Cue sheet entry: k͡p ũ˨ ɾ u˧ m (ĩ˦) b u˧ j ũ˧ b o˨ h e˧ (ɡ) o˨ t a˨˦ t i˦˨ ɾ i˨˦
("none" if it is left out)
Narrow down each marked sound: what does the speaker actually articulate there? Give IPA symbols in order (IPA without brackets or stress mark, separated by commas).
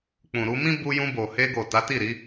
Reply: ĩ˦, ɡ